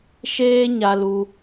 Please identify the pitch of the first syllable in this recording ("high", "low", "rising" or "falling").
high